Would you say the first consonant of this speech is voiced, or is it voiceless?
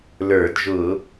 voiced